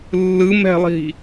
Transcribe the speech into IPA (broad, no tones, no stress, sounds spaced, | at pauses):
lː ɯ m ɛ̤ lˠ i̤